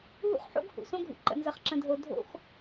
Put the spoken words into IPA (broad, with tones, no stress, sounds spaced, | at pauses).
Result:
ɦ ṵ˦ χ ħ o̰˦ ɡ h ṵ˨ s õ˦ ɡʱ ṵ˨ ǃ ə̰˨ n z ə˨ χ ǁ ə̃˨ dʱ o˨ dʱ o̰˦ x